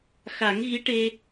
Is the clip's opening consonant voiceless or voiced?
voiceless